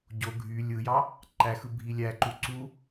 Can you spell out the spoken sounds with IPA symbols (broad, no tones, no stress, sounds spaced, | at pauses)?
ɟ o ɡʱ y lʲ ɯ j ɑ | ǃ æ x ɯ bʱ i lʲ æ ǃ u ǀ u